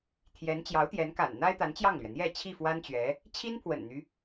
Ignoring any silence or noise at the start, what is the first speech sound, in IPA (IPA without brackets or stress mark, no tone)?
t̪ʰ